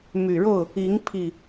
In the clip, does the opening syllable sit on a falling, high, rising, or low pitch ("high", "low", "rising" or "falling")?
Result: low